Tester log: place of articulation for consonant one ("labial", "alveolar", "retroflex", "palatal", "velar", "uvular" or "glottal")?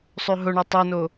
alveolar